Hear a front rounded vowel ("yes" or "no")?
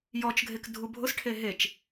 no